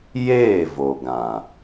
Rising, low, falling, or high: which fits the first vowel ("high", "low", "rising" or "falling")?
falling